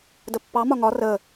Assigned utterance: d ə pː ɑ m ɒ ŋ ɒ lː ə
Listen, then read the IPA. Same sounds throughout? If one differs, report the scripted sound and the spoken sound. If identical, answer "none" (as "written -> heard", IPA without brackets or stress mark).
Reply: lː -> r